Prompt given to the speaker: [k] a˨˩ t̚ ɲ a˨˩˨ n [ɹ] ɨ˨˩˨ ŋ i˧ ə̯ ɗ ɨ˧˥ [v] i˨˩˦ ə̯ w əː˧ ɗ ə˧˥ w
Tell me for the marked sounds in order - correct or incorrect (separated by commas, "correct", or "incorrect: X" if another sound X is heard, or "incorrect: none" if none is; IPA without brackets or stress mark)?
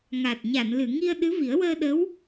incorrect: ŋ, incorrect: l, correct